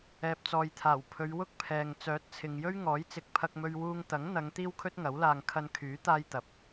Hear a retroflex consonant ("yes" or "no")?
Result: no